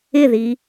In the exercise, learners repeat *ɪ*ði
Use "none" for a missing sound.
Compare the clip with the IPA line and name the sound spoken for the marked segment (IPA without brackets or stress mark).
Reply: ɪ